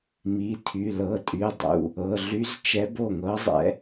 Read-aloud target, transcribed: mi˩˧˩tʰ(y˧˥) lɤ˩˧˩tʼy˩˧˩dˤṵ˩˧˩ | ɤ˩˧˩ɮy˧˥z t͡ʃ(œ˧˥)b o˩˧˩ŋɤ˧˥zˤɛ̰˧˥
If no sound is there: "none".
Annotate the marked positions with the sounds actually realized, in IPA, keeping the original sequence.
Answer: y˩˧˩, ɛ˧˥

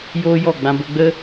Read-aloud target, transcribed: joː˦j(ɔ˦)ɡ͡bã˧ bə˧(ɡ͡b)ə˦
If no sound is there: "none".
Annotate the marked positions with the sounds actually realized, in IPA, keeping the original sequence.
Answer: ɔ˦˨, ɡ͡b

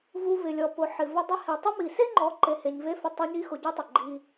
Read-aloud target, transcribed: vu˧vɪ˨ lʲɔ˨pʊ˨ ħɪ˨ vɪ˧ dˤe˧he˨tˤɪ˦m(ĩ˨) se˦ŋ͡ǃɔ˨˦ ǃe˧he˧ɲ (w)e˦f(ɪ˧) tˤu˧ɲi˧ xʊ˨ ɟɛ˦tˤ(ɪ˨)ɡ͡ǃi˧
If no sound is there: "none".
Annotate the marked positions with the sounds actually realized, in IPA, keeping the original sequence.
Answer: i˨, v, ɪ˧, ɪ˨

